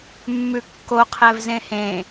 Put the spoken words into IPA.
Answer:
mːʉkːoqʰɛv zẽhẽ

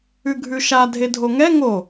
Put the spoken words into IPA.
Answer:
ʉɡʱʉʃa dʱedʱoŋɛ ŋo

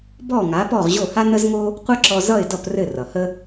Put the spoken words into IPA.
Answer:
bɔ˥˩ŋa˩˥ pɔ˥˩ʁʑo˥˩ ha˥nə˥zŋo˥ | qʷʌ˥ǁɔ˧zʌ˥˩ɪ̯dʌ˥˩p rɘ˥˩rʌ˩hə˥

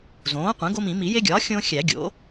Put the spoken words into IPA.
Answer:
zõː˩˥qʷẽ˩˥ ɡo˦mĩ˨˩˦ mi˨˩˦je˦ɡʲɒː˩˥ xʲõː˦xʲæ˨˩˦ ɡʲo̰˩˥

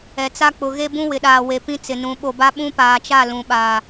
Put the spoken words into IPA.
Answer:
ɛ˨t͡sa˦ k͡pʊ˨ ɣe˦bũ˦ wɪ˨ɗaː˨ we˨ pĩ˦t͡sɪ˨nũ˨˦ ɓo˨ba˦ ɓũ˦paː˨t͡ʃa˦˨ lũ˨ɓaː˨

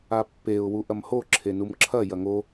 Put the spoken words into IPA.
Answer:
apːeʊ̯ wuʔɐmho ǁʰenumǁʰɐ jɐŋo

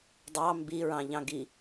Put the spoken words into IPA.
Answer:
dˤɑ mbiɹɑ̃ʎɑ̃ ɡi

